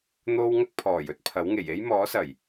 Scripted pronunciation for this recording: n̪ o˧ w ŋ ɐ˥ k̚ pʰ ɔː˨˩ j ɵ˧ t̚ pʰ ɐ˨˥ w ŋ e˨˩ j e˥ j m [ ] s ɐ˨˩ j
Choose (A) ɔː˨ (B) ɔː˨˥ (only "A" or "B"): B